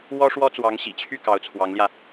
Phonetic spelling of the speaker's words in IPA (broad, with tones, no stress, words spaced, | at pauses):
wɔ˥ʂwɔ˥t͡swɑ˧˥ŋ ɕḭ˨˩t͡ɕʰy˥˩ kɑ˧˥ʊ̯t͡sʰwɑ˧˥ŋljä˧